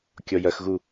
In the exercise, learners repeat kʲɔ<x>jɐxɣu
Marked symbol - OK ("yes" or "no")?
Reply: no